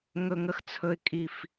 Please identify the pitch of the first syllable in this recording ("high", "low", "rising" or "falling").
low